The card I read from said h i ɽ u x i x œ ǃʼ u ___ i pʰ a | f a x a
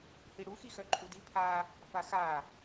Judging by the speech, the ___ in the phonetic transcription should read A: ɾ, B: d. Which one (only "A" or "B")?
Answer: B